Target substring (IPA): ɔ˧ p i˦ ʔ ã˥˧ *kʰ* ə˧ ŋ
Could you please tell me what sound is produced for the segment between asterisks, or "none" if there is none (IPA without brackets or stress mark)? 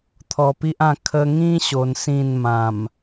kʰ